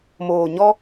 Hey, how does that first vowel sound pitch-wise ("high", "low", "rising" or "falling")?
low